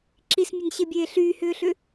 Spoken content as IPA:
ǁ i s mʲ ɐ n ɕ e bʲ eː ɬ yː h ʏː ɬ ʏ

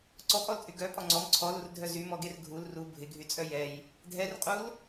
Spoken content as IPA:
ǀ ɔ pʼ ɔ l t͡sʼ y ɡ œ pʼ ɔ ŋ͡ǀ ɔ m ǀʰ ɔ l u r dʱ œ z y m ɔ ɡ e r ɡʱ u l r u bʱ ɪ ɡʱ y t͡sʼ œ j ɛ j | dʱ ɛ r qʼ u l

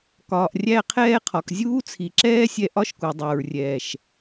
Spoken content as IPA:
k ɒː˨ ʔ rʲ æ˧ qʰ ɛː˧ qʰ ɒ˨ k zʲ uː˦ t͡sʰ i˨ ǁ ɛː˦ sʲ ɛ˧ ʔ ɒ˦ ʃ k u˨ dˤ æ˨ ɹ rʲ ɛː˨ ʃ

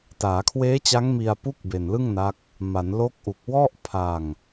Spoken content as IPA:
t aː˩˦ kʰ w eː˦˥ t͡ɕ a˦˥ ŋ m i˧ a̯ p u˥˩ k̚ b e˨˩ n l ɯ˥˩ ŋ n a˦˥ k̚ | m a˩˦ n l o˦˥ k̚ ʔ u˨˩ k̚ w ɔ˥˩ ʔ pʰ a˧ ŋ

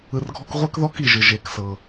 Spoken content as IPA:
ɯ˨ r ɡʱ ɔ˦ k ʁʷ ɛ˥ k ð ɔ˥ k i˨ ʒ ɯ˩ ʒ e˩ k s ɤ˩

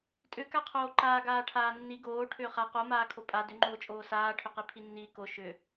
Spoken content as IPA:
tʼ ʏ k a qʰ oː ǃ aː ɡ aː ʈʰ aː nː i ɡ oː ʈʰ ʏː χ a q o m aː kʰ o pʼ a d ʏ ŋ͡ǃ oː t͡ʃʼ oː s aː ʈʰ ʏ q i pʰ i nː iː k o ʃ ʏ

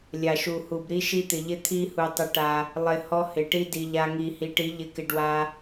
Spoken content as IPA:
lʲ a˨ ʃ u˨ h u˨ b ɾ i˦ ʃ i˦ t̪ ɪ˨ ʎ ɪ˦ t̪ʰ i˧ h u˨ tˤ ɪ˧ ʈ a˧ | lˠ ɪ˨ h ɔ˦ h ɪ˨ ʈ i˦ d i˧ ʎ a˦ ŋ i˧ h i˨˦ ʈ i˨˦ ʎ ɪ˧ k ɪ˧ ɖ w a˦

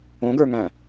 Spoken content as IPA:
õ ɡ ə˞ ŋ æ̃

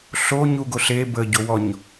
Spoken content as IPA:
ɬ o ɲ u ɡ o ɬ e b ə ɟ o w ɔ ɲ

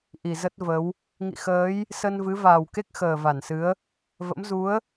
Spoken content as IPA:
ʔ i˧˩ z ə˦˥ t̚ v ə˨˦ w | ŋ ḭ˧˨ x əː˨˦ j | s ə˧ n v ɨ˨˦ v aː˨˩ w k e˦˥ k̚ x əː˨˩ v a˧˩ n s ɨ˨˦ ə̯ | v ə̰˧˥ m z u˨˦ ə̯

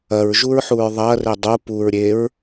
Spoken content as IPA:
ɐ ɹ ʒ u ɹ ħ u ɹ ðˤ ɐ r e dˤ u p u ɹ ɾʲ e ɹ

